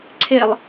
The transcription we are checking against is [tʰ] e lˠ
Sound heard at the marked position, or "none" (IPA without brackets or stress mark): ǀʰ